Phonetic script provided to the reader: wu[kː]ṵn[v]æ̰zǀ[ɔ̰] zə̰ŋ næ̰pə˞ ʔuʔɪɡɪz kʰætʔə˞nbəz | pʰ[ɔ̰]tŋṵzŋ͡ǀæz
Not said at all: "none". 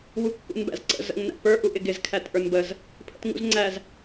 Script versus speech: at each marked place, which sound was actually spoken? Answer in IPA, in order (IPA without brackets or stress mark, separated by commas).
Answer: kː, b, ə̰, ə̰